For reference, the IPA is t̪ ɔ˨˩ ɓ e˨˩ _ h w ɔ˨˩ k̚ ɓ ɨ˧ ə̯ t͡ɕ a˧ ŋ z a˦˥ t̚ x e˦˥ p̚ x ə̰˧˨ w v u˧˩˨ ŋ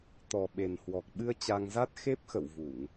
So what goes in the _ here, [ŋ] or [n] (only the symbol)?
n